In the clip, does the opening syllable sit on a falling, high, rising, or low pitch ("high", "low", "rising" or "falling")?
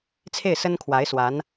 falling